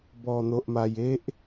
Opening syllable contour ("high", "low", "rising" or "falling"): low